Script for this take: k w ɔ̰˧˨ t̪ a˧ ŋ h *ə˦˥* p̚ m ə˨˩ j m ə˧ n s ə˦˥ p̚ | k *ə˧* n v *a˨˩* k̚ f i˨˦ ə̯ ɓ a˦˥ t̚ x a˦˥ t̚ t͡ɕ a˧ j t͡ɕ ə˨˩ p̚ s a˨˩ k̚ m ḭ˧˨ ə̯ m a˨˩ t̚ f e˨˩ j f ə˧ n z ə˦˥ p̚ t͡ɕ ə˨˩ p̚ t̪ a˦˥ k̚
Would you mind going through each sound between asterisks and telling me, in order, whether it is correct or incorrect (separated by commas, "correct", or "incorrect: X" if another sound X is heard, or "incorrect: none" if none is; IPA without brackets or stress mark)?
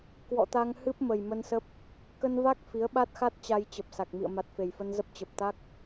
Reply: incorrect: ɨ˦˥, correct, incorrect: a˦˥